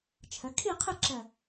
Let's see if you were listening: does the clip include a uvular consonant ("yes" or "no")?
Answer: yes